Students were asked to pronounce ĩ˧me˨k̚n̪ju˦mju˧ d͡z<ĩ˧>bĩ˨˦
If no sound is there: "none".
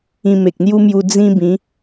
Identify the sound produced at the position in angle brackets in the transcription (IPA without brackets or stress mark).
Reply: ĩ˦